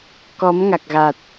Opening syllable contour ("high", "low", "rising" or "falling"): rising